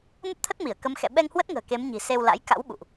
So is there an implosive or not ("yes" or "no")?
yes